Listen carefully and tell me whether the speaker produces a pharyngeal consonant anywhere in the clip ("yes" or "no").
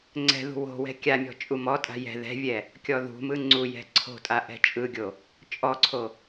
no